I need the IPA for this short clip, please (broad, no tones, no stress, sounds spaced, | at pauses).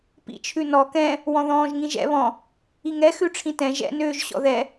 p ḭ t͡ʃʰ ʉ n ɔ k ɛ̃ | w ɔ̃ ð ɔ̃ː ʒ ŋ ĩ ʒ ɛ̰ β ɔ̃ | i ŋ ɛ x ʉ ʈ͡ʂʰ ĩ t ɛ̃ ʒ ɛ̰ n øː ʒ ɕ ɔ̰ ð ɛ